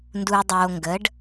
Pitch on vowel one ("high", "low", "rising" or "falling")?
low